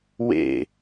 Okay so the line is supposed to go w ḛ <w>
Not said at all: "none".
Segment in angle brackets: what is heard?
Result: none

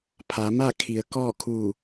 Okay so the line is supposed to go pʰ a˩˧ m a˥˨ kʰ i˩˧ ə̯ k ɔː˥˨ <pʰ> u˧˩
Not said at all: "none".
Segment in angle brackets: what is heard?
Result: kʰ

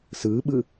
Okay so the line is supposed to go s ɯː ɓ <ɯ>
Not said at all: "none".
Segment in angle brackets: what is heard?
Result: ɯ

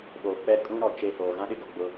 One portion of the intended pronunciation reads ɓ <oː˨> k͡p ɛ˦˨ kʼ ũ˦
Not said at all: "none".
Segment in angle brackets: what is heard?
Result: oː˨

